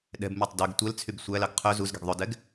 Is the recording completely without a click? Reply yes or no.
yes